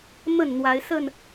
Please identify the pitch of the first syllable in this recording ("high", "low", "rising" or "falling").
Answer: falling